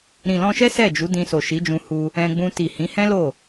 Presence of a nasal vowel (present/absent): present